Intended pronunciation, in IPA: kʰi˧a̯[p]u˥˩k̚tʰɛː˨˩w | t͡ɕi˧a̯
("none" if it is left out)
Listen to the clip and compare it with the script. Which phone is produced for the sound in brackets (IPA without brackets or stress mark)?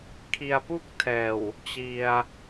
p